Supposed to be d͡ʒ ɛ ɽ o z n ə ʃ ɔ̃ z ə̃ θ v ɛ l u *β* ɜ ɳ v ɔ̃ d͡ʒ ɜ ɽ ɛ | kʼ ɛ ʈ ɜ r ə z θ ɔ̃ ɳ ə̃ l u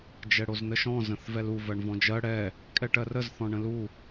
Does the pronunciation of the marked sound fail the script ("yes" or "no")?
yes